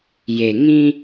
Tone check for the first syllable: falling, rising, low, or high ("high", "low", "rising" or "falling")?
low